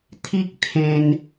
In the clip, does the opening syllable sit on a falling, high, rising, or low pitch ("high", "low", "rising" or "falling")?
high